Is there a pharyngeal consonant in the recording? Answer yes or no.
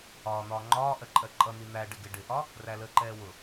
no